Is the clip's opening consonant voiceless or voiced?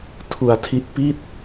voiceless